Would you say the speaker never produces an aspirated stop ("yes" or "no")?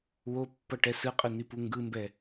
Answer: yes